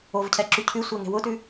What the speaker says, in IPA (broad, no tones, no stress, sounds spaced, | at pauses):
o v cʰ ɛ ǁ ʉ cʰ ʉ sʷ e ŋ e̤ w ʊ t ʉ